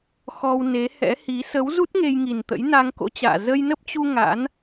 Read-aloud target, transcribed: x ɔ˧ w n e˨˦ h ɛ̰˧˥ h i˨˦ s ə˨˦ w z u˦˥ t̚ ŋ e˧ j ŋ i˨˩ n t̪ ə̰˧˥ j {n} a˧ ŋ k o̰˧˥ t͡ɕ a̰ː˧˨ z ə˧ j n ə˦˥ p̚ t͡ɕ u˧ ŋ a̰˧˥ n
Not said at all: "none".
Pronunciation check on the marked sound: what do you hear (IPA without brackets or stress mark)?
n